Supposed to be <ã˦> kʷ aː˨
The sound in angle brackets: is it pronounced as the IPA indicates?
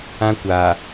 yes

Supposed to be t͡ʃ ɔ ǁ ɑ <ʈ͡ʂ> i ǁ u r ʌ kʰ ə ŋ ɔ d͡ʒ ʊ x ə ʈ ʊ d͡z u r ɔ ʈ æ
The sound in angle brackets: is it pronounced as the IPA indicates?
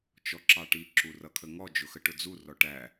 no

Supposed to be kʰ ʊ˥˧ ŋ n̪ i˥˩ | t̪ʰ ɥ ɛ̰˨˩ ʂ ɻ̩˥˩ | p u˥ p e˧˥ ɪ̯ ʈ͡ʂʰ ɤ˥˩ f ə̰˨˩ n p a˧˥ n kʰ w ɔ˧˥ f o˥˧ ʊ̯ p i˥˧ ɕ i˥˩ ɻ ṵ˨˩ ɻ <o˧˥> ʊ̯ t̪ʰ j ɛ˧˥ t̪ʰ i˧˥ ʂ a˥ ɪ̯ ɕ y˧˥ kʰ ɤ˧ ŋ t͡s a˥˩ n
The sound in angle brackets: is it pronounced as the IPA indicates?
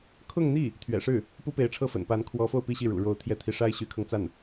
yes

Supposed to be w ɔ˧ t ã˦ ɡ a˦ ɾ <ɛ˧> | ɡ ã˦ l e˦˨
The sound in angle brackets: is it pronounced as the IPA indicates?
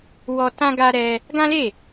yes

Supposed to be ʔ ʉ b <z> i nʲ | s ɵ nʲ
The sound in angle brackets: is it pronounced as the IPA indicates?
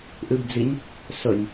no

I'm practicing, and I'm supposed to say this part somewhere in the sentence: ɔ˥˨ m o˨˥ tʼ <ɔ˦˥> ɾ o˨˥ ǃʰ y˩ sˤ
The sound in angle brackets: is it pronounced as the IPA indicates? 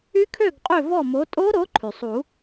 no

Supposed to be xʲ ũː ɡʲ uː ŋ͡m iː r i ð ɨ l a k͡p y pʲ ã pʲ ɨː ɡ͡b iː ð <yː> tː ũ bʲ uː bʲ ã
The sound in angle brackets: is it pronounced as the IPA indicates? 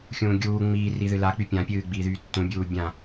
yes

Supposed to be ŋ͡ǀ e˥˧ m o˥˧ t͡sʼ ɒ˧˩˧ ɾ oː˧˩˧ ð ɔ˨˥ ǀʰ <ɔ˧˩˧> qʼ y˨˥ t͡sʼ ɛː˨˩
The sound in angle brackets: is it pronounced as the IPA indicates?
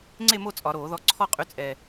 no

